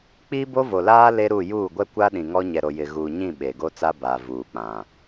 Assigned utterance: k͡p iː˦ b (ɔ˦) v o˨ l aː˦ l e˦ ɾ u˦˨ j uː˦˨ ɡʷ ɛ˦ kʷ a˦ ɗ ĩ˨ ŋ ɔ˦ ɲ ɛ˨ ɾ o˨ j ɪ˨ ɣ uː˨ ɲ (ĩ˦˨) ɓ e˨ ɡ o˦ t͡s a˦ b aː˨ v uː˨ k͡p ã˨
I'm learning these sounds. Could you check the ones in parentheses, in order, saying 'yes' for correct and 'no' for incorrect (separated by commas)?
no, yes